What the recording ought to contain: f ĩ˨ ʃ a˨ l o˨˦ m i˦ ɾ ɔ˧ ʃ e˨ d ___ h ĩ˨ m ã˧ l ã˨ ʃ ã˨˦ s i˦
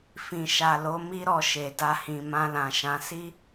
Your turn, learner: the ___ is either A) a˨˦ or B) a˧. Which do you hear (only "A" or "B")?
B